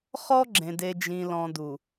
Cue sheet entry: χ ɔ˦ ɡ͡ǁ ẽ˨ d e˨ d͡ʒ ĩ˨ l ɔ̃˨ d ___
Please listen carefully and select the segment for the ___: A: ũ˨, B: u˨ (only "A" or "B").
B